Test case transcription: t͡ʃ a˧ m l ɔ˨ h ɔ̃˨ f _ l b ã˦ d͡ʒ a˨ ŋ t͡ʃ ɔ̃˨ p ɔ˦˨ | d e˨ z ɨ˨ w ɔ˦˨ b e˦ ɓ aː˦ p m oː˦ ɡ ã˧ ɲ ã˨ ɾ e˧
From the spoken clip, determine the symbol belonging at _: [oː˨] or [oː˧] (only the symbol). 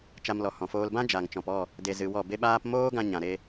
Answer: oː˧